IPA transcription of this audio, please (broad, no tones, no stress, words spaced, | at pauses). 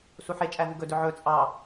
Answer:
suħet͡ʃʼæ vuɡɵdɵ ʕɵ t͡sʼɑ